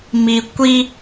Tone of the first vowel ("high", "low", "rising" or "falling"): low